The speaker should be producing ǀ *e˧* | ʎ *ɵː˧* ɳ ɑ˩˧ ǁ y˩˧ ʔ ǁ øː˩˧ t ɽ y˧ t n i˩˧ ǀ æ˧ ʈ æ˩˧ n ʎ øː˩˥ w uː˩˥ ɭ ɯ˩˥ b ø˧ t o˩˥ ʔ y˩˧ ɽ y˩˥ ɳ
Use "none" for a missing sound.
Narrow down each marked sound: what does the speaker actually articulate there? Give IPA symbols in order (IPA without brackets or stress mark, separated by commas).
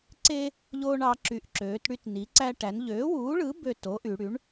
e˧, oː˧